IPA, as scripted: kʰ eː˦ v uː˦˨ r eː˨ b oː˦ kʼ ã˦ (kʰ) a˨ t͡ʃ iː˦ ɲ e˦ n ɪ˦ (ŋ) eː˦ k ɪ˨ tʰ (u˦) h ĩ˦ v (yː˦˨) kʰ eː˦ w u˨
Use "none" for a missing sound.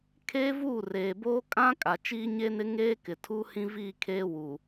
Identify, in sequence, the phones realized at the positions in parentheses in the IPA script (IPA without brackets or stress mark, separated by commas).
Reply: kʼ, ŋ, u˦, iː˦˨